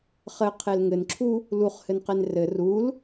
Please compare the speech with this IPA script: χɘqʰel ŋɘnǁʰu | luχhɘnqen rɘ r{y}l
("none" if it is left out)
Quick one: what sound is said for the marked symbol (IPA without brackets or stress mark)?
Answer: u